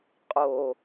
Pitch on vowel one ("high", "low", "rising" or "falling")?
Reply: low